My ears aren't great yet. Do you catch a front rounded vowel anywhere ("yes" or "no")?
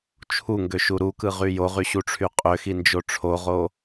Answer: yes